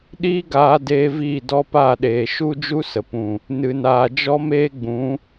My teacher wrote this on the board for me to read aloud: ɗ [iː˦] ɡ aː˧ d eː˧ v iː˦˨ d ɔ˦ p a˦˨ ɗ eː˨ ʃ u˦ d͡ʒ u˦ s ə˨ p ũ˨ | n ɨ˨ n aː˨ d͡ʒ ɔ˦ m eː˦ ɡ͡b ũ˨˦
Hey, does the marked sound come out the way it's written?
yes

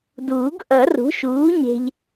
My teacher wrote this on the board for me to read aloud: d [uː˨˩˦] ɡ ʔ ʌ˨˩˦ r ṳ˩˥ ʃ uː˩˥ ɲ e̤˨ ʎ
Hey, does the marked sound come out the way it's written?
yes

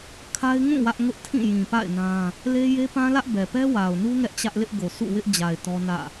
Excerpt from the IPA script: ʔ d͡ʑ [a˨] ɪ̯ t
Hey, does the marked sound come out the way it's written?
yes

